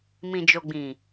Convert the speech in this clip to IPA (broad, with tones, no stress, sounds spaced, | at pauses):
m ĩ˨ d͡ʒ o˨ ɡ͡b ĩ˨